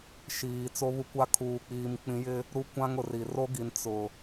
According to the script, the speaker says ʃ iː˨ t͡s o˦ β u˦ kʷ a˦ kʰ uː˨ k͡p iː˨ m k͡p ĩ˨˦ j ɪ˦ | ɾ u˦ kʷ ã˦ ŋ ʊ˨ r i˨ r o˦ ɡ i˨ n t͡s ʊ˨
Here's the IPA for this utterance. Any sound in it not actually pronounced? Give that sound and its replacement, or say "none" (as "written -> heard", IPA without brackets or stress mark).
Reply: none